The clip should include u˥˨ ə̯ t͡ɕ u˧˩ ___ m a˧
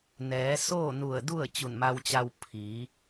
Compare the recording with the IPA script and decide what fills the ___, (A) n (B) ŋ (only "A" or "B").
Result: A